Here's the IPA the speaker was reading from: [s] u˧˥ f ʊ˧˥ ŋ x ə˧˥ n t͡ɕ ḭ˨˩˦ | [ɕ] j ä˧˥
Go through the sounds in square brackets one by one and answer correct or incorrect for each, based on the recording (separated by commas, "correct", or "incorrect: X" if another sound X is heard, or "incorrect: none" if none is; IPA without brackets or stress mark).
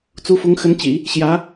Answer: incorrect: t͡s, correct